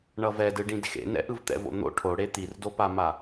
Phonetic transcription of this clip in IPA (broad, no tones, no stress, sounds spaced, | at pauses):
ɳ ʌ v ɛ d ɯ ɖ ĩ d x ḛ n ɛ̰ ʔ ɯ v t̪ ɛ̰ v o̰ n̪ o̰ ʈʰ o ɽ e t̪ i r d o p a m a